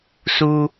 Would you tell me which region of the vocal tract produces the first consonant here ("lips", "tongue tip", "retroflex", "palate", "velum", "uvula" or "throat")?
tongue tip